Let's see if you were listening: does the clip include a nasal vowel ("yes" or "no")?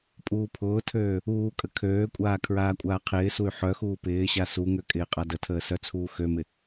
no